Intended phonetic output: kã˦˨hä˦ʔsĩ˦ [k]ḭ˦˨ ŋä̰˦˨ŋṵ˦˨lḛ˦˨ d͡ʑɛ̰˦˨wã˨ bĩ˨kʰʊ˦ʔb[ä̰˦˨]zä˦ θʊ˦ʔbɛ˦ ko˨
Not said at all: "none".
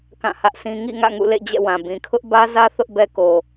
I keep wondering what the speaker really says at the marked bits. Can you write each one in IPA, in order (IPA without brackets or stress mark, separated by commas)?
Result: ŋ, ä˦